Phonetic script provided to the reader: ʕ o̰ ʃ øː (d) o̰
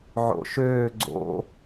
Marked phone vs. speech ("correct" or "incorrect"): incorrect